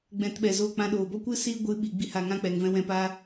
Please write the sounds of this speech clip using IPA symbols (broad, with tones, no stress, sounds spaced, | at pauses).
ɡ͡b ɛ̃˧ t ɓ ɛ˨ z o˦˨ k͡p ã˧ ɗ oː˨ b ɔ˦ kʷ ɨ˦ s iː˦ ɡʷ ɨ˨˦ ɓ i˨ ɡ͡b i˧ h a˨ ŋ ã˦ k͡p ɛ˨ ŋ v ɛ̃˧ w ɛ̃˧ p a˦